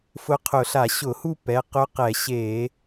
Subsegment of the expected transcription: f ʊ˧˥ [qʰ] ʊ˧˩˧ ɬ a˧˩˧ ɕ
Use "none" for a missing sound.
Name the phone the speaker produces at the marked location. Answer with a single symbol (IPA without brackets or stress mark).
qʰ